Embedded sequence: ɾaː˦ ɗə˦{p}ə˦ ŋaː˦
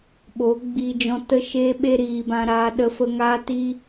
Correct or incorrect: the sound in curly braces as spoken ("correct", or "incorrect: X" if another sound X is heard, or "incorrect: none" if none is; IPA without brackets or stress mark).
incorrect: f